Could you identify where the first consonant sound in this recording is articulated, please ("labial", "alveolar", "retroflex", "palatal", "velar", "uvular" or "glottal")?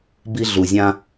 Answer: labial